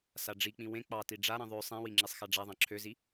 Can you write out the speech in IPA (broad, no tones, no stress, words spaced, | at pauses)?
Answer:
saɖ͡ʐik͡pĩ wẽ k͡pɑti ɖ͡ʐaɾĩ ðˤø sˤĩwi ŋ͡ǁisˤxaɖ͡ʐaðˤɑ̃ ǁʰøzi